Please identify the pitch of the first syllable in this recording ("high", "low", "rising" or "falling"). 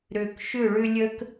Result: low